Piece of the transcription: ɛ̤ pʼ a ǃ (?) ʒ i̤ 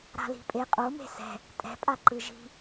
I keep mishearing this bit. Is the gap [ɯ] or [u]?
ɯ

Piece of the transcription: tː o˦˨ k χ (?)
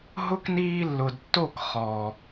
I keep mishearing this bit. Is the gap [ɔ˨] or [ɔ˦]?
ɔ˨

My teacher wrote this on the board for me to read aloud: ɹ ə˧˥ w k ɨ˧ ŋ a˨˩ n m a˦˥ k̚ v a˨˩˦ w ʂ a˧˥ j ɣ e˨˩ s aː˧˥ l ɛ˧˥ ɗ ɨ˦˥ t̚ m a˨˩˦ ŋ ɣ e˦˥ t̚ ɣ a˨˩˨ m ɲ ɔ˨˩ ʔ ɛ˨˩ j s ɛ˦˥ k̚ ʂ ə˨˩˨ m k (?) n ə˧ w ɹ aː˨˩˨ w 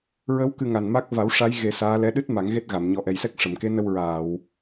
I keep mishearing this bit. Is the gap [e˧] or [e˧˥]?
e˧˥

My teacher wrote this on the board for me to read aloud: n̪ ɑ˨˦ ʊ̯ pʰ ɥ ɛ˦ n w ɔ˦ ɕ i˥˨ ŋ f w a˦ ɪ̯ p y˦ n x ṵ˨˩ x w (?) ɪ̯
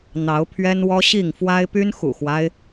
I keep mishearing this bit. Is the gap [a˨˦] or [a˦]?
a˦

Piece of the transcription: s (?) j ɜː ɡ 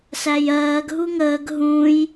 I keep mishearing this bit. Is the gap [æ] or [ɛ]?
æ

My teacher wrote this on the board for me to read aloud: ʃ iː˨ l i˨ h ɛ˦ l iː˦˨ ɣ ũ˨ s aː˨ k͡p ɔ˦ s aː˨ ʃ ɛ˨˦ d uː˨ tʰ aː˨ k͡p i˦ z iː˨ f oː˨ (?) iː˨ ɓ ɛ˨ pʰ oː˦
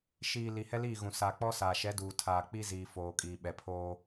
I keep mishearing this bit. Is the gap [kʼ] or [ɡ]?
kʼ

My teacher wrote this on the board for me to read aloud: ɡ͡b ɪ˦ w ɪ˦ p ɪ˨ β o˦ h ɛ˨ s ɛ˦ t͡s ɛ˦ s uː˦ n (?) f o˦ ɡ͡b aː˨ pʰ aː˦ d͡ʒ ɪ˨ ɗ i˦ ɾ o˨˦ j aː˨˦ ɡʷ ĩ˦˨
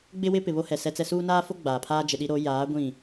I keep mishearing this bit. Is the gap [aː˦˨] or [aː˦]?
aː˦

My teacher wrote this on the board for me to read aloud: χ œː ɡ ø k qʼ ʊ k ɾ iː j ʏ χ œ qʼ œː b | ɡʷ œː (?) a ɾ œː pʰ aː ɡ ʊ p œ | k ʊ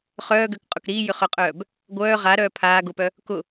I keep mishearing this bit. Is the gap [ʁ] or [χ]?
ʁ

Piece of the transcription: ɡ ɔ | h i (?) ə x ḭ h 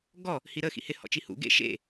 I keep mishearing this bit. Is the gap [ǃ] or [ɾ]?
ɾ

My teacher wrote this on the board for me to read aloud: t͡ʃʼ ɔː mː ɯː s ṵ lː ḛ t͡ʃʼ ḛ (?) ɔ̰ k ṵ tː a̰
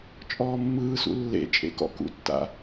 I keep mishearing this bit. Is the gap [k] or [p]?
k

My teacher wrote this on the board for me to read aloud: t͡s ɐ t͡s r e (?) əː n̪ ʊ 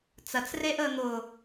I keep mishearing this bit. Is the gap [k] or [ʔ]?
ʔ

